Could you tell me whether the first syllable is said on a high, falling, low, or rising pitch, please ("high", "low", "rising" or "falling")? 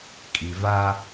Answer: low